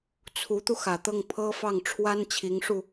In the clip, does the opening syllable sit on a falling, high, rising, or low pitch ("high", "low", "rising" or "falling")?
rising